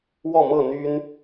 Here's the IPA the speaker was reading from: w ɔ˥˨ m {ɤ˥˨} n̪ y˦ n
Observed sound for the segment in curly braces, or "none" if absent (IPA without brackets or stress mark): ɤ˥˨